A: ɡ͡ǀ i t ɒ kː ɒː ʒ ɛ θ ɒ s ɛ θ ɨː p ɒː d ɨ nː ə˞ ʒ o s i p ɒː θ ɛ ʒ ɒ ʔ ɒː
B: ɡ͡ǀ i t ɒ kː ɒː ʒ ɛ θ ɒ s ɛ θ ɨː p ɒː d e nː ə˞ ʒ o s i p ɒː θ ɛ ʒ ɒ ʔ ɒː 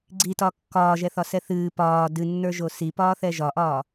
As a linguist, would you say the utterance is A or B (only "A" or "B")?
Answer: A